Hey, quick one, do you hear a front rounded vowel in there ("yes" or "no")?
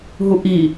no